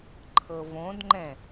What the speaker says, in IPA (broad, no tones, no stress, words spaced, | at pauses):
ǃʰɤvõdŋ͡ǃɛ̃